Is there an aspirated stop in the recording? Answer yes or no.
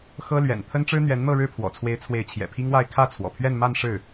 yes